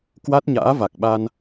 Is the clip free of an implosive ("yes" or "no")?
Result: no